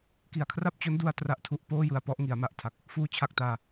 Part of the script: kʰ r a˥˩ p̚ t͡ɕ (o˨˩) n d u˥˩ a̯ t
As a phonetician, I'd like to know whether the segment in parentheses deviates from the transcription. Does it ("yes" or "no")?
yes